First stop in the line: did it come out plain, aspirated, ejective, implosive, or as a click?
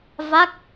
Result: plain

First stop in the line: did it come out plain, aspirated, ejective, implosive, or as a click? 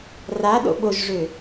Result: implosive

